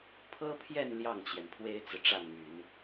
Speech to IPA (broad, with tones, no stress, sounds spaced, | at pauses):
pʰ ɤ˥ pʰ j ɛ˥˧ n l j ɑ˥˩ ŋ t͡ɕ j ɛ˩ n pʰ w e˥ ɪ̯ t͡s ɹ̩˨ ʈ͡ʂ a˥˩ n m y˨˩˦ n